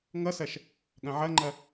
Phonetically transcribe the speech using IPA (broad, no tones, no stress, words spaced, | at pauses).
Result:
ŋʌsɐʃ | ɠɐ̃ʕɐŋ͡ǃɐ